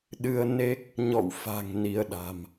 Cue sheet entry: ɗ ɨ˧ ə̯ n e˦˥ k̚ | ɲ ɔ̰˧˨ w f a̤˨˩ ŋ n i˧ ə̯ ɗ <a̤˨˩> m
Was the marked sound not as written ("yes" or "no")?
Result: no